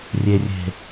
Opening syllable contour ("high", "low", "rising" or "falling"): low